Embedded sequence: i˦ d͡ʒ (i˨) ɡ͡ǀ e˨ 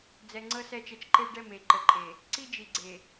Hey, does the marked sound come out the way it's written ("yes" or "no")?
yes